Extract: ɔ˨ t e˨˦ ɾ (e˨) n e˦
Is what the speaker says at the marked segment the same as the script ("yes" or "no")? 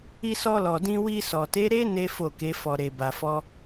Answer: no